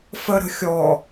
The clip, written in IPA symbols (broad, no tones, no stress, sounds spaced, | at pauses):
f ə ɾ ə̤ xʲ ɔ